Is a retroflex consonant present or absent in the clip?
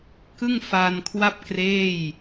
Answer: absent